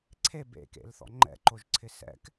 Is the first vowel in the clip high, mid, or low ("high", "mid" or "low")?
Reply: mid